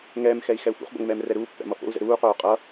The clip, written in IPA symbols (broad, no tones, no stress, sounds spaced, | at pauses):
ŋ ɛː m x ɛ i̯ x ɛ u̯ f ṵ χ b o̰ ŋ m ɛː m r ɛ ɾ uː pː ɛ̰ m ʌ f o̰ u̯ z ɛ̰ ɾ uː q oː qʼ ʌ